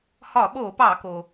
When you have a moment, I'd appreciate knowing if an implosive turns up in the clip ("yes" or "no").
yes